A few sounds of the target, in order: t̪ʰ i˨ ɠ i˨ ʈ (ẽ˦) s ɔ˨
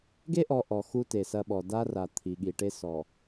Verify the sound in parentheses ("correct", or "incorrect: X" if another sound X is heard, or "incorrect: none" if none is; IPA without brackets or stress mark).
incorrect: e˦